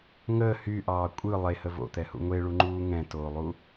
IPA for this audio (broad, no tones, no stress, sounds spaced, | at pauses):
ŋ əː h y ʔ ɑː kʷʼ ɯ lˠ e h ə v o̰ t̪ ɛ h ṵ ŋʷ e ɭ u ŋ͡ǃ uː ŋ ɛ̃ t oː lˠ u